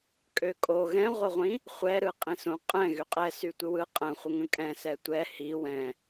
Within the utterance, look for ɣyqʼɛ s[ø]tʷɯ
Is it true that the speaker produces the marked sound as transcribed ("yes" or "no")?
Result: no